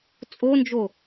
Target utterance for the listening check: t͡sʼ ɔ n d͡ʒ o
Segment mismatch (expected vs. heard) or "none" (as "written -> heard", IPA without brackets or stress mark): ɔ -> o